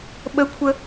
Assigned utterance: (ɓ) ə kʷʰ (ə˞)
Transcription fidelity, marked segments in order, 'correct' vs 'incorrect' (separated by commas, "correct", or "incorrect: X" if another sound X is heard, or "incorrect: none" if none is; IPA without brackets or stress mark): correct, incorrect: ə